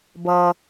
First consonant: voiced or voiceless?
voiced